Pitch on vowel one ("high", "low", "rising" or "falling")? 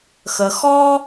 low